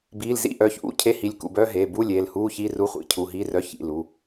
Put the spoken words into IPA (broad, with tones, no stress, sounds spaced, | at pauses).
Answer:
b iː˩˧˩ l z ḭ˧˥˧ ʔ œː˩˧˩ ç ʔ ṵ˧˥˧ cʰ e˧˥˧ h i˩˧˩ lʲ k ṵ˩˧˩ b œː˧˥˧ ɦ eː˩˧˩ b u˧˥˧ lʲ eː˩˧˩ l h uː˧˥˧ ç iː˧˥˧ r u˧˥˧ χʷ ḭ˩˧˩ cʰ u˩˧˩ ɦ iː˧˥˧ r œ˧˥˧ ç ḭ˩˧˩ l u˩˧˩